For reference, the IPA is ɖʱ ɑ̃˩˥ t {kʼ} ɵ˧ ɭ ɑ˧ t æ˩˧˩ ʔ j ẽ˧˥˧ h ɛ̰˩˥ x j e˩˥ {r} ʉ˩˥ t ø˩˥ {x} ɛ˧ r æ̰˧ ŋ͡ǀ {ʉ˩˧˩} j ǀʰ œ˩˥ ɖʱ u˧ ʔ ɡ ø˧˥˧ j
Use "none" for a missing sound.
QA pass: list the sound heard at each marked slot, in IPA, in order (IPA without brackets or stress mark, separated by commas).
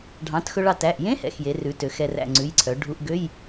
x, r, x, ʉ˩˧˩